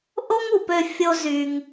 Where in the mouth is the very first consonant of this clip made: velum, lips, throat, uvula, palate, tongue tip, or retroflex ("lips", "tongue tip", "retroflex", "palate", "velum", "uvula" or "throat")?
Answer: throat